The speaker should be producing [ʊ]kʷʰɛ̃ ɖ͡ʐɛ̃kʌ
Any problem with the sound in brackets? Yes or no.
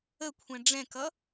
yes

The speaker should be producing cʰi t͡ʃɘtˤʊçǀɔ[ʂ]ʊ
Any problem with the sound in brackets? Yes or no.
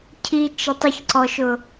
yes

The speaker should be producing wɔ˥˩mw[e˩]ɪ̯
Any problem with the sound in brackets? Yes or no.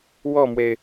no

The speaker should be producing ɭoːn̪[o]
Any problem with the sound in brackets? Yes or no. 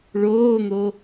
no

